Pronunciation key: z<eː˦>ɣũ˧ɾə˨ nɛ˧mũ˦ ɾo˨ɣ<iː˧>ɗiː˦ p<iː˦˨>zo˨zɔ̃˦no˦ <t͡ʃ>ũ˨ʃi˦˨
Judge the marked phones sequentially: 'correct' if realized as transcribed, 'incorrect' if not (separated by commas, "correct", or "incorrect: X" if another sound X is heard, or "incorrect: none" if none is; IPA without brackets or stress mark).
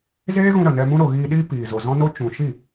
correct, correct, incorrect: iː˨, correct